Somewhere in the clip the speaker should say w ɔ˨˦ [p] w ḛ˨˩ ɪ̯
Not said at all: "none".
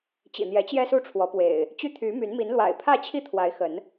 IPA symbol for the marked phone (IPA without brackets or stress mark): p